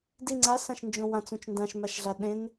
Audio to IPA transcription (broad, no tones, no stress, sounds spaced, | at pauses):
d i ŋ͡ǀ a s ã ʃ n d͡ʒ õ w ã t͡s ũ t͡ʃ n d ã ʃ m a ʃ ɮ a ɗ ẽ n